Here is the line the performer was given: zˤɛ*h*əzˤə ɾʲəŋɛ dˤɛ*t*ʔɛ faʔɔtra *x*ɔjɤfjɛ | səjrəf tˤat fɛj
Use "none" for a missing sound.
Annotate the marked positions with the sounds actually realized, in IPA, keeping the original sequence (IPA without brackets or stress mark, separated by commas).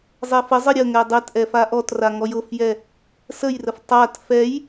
f, t, ŋ